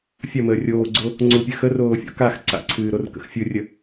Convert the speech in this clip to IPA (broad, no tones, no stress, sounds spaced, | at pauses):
fʲ ɐ m əː rʲ oː ɡ͡ǀ o | ŋ͡ǀ u pʲ ɨ x ə r oː fʲ o̰ k a x ǀ a̰ ǀʰ ɨː ɾ o r k ə̰ x fʲ ɯ rʲ ə